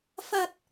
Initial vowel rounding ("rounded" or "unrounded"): unrounded